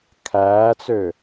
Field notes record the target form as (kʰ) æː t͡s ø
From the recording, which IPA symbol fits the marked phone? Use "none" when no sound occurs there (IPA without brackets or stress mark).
kʰ